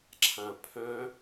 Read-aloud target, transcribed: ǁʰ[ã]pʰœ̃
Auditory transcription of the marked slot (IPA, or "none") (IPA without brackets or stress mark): ã